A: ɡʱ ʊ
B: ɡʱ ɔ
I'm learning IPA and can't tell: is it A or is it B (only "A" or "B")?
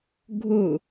A